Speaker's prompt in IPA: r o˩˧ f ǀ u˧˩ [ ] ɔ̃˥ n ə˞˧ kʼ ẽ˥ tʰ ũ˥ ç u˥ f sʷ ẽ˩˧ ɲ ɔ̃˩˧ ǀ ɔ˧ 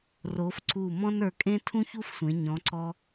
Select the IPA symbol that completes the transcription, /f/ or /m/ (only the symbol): m